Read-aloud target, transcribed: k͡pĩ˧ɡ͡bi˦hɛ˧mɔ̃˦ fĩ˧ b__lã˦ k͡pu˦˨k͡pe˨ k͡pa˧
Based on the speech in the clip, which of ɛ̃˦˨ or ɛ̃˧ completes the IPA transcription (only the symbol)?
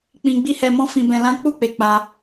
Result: ɛ̃˧